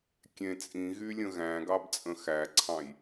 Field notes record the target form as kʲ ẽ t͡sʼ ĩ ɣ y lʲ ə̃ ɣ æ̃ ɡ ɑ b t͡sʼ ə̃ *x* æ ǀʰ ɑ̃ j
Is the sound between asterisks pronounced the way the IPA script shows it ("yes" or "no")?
yes